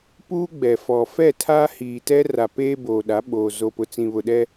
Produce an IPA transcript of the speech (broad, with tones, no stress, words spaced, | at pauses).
puː˦ɡ͡bɛ˨fɔ˨ fɛ˦˨tʰa˦hiː˨tɛ˦ ra˨ peː˦boː˨ɗa˨˦ ɓoː˨ zo˨pʊ˨t͡sĩ˨βʊ˨ ɗɛ˦